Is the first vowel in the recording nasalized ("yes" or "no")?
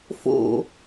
no